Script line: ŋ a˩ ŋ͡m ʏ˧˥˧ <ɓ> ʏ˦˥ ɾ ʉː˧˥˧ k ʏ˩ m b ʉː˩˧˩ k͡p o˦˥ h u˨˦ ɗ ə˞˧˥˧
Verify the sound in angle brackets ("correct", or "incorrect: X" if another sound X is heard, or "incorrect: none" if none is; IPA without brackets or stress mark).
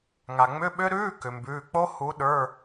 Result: correct